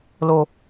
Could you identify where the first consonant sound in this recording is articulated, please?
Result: alveolar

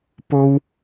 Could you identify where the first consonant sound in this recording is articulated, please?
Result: labial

